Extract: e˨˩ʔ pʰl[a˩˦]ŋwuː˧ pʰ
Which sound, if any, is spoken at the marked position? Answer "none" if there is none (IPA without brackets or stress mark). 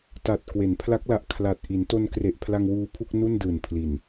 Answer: a˧